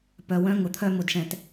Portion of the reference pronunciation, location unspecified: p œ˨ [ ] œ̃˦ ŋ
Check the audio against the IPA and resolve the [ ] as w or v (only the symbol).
w